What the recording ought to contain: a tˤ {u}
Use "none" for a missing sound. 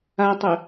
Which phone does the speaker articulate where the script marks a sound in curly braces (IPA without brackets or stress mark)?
ʏ